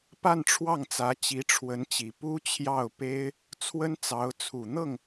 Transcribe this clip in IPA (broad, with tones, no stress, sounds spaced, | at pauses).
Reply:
p a˥˧ n ʈ͡ʂʰ w ɑ˥˩ ŋ t͡s ä˧˥ t͡ɕ i˧˥ ʈ͡ʂʰ w ə˧˥ n t͡ɕ i˨˩ p u˥ t͡ɕʰ j ɑ˥˩ ʊ̯ p e˥ ɪ̯ | t͡sʰ w ə˥ n t͡s ɑ˧˥ ʊ̯ t͡sʰ u˨˩ n̪ ɤ˥˩ ŋ